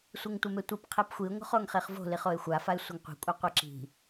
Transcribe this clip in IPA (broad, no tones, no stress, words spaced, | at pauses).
sʷeŋtʷɐmetʷip qʰepxʷiʊ̯ ŋo̤χoŋχeχvo̤ liχoɪ̯xʷa faɪ̯sʷɐŋqʷi̤ kʷʼaqʷeǁi̤